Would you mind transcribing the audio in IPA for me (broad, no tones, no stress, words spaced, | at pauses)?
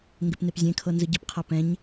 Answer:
ŋɡepnepzʲẽkʰɤ nzɯɟipqʰa pɛ̃ɲ